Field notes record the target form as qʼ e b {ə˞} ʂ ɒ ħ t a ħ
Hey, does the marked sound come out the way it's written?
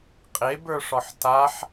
yes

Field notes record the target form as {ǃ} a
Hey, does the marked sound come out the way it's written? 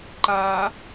yes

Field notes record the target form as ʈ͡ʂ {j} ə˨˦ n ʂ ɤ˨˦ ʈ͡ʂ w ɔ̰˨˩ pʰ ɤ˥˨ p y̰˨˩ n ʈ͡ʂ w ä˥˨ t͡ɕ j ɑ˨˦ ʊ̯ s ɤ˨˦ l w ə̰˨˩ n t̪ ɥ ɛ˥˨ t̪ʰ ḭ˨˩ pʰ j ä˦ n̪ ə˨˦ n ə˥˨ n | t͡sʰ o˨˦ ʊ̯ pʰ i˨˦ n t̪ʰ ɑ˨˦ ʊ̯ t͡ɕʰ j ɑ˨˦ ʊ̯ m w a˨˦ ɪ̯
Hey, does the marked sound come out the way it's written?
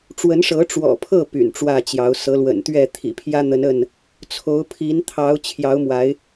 no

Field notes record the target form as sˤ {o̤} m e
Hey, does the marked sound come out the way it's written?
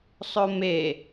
no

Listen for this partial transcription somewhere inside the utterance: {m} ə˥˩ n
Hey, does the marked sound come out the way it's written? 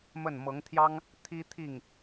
yes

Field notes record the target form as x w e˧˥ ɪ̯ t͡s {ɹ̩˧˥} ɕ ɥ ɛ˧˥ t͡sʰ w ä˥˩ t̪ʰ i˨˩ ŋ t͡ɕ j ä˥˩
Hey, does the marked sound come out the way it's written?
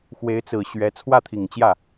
no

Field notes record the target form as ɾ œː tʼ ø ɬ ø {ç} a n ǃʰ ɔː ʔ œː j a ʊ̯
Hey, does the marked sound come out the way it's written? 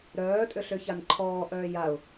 yes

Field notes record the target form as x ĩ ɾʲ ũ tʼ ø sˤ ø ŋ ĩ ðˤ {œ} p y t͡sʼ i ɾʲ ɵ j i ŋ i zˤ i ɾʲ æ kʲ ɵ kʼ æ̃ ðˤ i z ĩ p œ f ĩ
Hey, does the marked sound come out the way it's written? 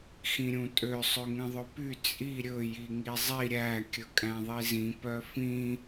no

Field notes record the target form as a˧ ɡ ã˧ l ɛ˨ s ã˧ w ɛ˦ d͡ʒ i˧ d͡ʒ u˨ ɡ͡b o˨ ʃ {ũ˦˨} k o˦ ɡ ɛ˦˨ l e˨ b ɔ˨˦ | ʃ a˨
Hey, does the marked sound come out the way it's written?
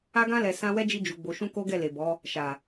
no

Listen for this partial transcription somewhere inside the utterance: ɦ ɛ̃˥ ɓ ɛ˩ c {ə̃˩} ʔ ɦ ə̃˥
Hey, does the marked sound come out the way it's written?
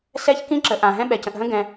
yes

